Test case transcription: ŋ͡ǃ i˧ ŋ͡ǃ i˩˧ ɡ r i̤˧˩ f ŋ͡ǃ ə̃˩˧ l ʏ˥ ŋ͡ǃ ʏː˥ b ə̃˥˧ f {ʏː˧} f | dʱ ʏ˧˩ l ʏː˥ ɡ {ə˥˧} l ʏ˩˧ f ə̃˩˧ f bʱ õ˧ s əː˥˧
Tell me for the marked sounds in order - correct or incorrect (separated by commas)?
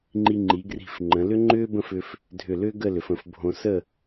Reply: correct, correct